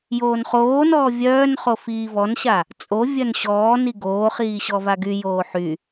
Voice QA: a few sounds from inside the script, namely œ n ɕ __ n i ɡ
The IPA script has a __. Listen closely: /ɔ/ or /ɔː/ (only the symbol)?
ɔː